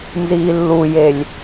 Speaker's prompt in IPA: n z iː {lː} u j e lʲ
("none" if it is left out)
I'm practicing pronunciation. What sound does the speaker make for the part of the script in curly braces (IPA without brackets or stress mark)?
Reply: lː